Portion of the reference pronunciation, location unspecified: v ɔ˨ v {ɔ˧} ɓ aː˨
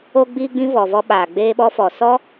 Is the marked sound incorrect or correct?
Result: correct